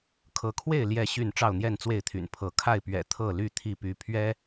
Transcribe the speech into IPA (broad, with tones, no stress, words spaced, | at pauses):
kʰɤ˨˦kʰwe˥˨ɪ̯ ljɛ˥˨ɕy˥˨n ʈ͡ʂɑ˥˨ʊ̯n̪jɛ˥˨nt͡swe˥˨ɪ̯t̪ʰy̰˨˩n pʰɤ˨˦ kʰa˥˨ɪ̯pɥɛ̰˨˩ t̪ʰɤ˥˨ly˥˨ t̪ʰi˥˨py˨˦ pʰɥɛ˦